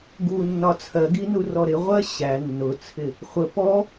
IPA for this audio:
ɡ u nː ɒ t͡sʰ ɜ ɡ i n u r ɔ ɾ ɪ ʁʷ ɜ ɕ æ nː ʊ t͡sʰ ɪ | χʷ ə p ɔ

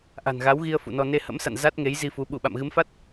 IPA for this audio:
ʔ a̤˨˩ n ɣ a˨˦ w ɣ i˧ ə̯ f ṵ˧˨ n ɔ˧ n e˧ h ə̰˧˥ m s a̰˧˨ n z a˦˥ t̚ ŋ e˨˦ j z i˧ f u˨˦ ɓ u˧˩ ɓ a̰˧˨ m ɣ ɨ˨˦ m f a˦˥ t̚

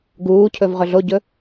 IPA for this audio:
ɡ uː cʰ ɵ v ʁ ɵ ɮ o ɟ ɵ

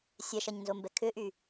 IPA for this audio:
sʲ ɛ ʃ ɐ ɲ n z o m b ɛ kʰ ʏ ʔ y

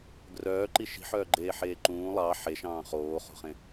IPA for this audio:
ɡ r œː ǃ i ʃ i̤ ħ œː ɡ͡ǃ eː ħ eː ǃ ũː lˠ ɑ ħ e ʃ ɑ̃ː χ oː χ o̤ χ ẽ

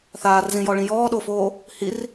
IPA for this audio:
θ aː r z ĩ j ɔ ɭ ĩ j ɔː ɗ o f oː | h i r

